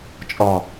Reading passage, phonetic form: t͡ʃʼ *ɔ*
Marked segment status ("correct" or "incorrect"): correct